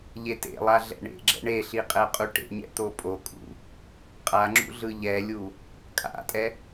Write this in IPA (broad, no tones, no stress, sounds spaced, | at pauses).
ʎ e t ḛ lˠ a ɮ ɛ̰ ɳ ḛ ɡ͡ǁ ɛ̰ ɳ e ɬ i qʼ ɛ qʼ u ʈ ḛ ɲ ɛ̰ t̪ o pʼ o kʼ ṵ | qʼ a ŋ͡ǁ ṵ ɮ ɯ ʎ ɛ lʲ u | kʼ a̰ tʼ ɛ